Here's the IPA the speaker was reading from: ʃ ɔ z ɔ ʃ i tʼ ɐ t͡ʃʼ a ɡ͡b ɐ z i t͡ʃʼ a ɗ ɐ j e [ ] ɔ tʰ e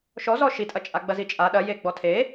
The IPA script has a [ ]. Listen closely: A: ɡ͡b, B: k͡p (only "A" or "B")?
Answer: A